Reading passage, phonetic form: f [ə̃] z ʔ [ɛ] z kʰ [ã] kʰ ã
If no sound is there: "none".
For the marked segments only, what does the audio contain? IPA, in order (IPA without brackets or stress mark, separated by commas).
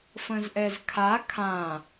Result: ə̃, ɛ, a